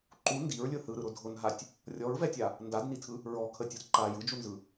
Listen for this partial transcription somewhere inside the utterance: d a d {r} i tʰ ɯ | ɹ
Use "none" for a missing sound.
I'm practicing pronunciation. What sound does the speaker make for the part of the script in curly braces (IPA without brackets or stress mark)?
n